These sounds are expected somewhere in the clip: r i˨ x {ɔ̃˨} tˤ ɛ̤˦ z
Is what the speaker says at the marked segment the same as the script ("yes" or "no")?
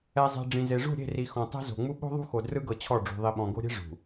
yes